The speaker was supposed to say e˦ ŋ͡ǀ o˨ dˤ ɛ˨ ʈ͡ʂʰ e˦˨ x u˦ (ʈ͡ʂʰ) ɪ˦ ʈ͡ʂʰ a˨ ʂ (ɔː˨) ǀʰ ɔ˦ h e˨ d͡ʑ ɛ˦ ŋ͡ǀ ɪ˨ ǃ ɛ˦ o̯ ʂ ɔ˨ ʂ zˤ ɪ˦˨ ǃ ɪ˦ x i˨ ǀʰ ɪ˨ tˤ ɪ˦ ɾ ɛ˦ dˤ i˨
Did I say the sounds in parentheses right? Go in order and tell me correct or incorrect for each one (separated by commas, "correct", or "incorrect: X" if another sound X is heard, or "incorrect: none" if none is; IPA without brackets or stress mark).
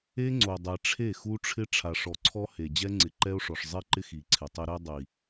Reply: correct, incorrect: ɔ˨